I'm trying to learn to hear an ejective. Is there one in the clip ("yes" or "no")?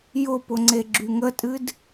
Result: yes